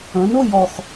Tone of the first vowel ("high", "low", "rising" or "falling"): rising